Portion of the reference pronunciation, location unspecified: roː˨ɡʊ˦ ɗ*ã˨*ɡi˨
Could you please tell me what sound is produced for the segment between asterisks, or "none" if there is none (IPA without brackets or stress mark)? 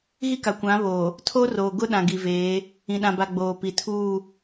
ã˨